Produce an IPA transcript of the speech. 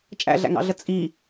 t͡ʃʼæ̰ɮæ̰ŋɑ̰ɮə t͡sʼi

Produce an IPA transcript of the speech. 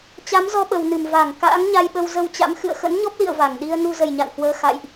t͡ɕa˨˦mzɔ˧ɓə˨˩wnɨ˧˩m va˧˩ŋ ka̰ː˧˥ŋɲa˧jɓə˧w zə˧wt͡ɕa̰˧˥m xɨ̰˧˨ə̯xə̰˧˥nɲɔ˦˥p̚lḭ˧˨ə̯ va˧˩ŋɗi˧ə̯ nu˧zə˨˩jɲa̰˧˨nhwəː˧ xa̰˧˨jʔ

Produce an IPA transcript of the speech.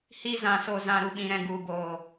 hi˧ zã˨so˨zã˨ ɾu˨ɓĩ˨ɾɛ̃˨ ɡu˨boː˨

